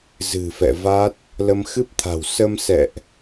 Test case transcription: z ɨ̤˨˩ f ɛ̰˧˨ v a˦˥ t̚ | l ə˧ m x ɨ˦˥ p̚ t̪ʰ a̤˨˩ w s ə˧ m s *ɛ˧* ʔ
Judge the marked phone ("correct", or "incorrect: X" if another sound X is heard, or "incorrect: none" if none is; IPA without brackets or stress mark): incorrect: ɛ̰˧˨